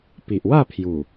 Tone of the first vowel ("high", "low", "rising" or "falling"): low